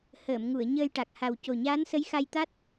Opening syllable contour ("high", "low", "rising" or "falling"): low